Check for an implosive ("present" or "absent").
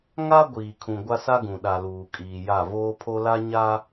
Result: present